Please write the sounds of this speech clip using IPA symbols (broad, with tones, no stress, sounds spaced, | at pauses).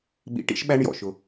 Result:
ɓ ḭ˨˦ ʈ ḭ˦˥ ʃ ɓ æ˦˥ ɳ j ɔ̰˩ ʃ ʊ˩